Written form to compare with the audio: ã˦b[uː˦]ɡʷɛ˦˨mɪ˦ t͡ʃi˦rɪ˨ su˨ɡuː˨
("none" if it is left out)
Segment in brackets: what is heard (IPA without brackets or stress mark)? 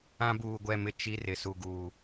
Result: uː˨